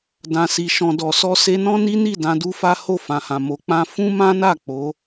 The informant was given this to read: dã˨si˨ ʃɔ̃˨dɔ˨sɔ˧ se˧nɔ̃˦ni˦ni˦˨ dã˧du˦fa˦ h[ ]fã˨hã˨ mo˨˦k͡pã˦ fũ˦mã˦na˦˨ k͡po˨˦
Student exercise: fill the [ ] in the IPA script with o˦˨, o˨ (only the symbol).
o˦˨